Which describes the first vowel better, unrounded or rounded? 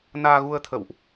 unrounded